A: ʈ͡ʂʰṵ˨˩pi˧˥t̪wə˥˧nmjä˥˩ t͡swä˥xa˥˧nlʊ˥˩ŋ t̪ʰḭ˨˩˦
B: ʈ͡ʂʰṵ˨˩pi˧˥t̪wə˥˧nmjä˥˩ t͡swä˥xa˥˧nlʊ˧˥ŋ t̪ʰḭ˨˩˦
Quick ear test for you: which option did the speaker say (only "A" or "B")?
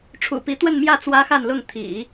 A